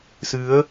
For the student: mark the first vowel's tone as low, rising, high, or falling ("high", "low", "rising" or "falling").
rising